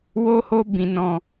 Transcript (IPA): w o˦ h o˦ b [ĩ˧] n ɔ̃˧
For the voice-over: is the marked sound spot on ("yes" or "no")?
yes